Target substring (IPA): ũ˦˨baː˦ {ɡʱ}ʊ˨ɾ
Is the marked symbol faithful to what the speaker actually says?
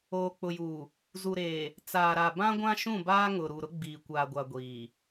no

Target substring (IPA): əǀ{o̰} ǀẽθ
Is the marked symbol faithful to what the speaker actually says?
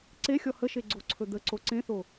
no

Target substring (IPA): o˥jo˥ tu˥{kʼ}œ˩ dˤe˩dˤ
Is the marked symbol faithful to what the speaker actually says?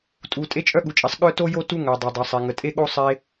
no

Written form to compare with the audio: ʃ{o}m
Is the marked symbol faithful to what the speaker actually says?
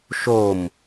yes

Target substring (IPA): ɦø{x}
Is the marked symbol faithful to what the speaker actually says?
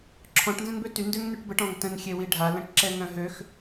yes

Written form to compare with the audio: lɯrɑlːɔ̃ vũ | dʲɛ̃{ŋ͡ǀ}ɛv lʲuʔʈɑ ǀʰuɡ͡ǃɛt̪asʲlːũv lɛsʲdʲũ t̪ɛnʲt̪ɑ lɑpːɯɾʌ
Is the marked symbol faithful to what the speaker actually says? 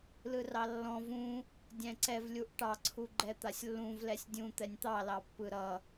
no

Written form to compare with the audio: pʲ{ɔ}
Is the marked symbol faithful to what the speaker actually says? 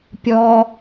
yes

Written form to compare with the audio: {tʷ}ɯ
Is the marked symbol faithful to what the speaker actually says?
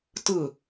no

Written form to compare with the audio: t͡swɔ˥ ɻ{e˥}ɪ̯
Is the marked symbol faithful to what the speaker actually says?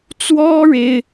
yes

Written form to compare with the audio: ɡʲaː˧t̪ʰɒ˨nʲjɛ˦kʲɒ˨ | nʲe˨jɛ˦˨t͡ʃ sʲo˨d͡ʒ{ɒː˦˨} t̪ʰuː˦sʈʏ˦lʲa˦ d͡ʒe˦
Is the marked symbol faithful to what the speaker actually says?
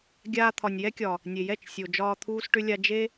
no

